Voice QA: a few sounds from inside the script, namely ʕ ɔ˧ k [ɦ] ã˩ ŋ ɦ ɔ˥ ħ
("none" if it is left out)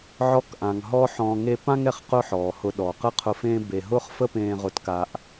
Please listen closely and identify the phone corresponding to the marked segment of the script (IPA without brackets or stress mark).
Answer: ʔ